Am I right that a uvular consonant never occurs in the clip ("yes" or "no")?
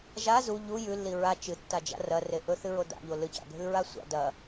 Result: yes